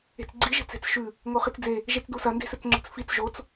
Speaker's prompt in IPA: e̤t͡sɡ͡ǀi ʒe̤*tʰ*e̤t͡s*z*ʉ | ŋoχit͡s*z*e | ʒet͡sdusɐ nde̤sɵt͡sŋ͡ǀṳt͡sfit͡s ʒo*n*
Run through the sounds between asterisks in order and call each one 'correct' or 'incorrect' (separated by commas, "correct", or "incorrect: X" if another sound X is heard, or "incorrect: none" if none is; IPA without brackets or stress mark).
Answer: incorrect: t͡s, incorrect: ʃ, incorrect: d͡z, incorrect: t͡s